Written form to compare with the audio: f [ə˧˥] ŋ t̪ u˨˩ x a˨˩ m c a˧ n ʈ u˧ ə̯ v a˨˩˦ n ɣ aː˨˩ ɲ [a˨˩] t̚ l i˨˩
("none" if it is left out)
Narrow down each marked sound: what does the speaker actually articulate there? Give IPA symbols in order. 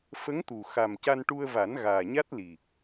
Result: ə˧˥, a˦˥

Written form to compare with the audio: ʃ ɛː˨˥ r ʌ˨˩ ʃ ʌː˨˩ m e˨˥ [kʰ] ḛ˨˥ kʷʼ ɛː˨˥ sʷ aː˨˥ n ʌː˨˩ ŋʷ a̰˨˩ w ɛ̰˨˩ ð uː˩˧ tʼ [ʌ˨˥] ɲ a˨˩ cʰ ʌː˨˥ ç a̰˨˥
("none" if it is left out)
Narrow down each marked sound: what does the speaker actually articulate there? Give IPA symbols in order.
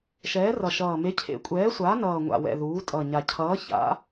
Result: cʰ, ʌ˨˩

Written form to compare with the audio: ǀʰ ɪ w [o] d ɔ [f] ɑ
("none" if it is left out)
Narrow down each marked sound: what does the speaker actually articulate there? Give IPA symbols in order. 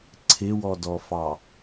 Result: ɔ, f

